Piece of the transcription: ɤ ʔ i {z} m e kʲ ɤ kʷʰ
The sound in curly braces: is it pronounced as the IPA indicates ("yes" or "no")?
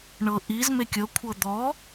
yes